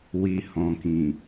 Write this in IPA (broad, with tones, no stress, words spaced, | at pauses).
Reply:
wi˨hɔ̃˨kĩ˨